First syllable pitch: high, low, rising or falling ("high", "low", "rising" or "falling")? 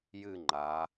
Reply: falling